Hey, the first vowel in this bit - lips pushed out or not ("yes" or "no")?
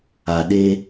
no